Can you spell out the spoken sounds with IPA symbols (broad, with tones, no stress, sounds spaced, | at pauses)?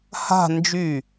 h a̤˥˧ n d͡ʒ y˧˩